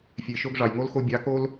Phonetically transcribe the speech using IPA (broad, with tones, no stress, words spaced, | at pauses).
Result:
fʲe˨ʃo˧ɡ ʐɑ˨jŋo˦lxo˧ bʲɑ˨˦ko˦l